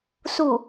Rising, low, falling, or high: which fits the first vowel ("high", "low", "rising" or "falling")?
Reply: falling